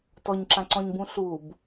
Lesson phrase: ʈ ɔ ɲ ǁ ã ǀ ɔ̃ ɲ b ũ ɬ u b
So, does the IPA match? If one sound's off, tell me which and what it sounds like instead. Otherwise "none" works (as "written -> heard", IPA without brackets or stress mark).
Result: ʈ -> t